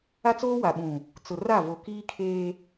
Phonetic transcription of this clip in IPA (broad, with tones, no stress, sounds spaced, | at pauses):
a˦ t͡s oː˦ w a˨ ɓ ũ˨ | t͡s ʊ˨ r a˦˨ v o˨ k iː˦ kʰ eː˦